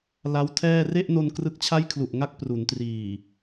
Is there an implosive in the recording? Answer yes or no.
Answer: no